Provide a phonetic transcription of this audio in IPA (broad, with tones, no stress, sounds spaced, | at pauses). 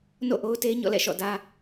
n o̰˦˨ ʔ o˦ ʊ̯ t e˦ ɲ ɔ̰˦˨ l ɛ̰˦˨ ʃ ɔ̰˦˨ d ä˦